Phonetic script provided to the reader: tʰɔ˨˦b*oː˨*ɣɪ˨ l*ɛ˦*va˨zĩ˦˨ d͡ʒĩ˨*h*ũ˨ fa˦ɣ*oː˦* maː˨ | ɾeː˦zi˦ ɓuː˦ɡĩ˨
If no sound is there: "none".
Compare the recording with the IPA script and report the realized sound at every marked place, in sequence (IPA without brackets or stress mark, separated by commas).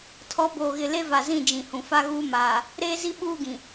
oː˨, e˦, h, uː˦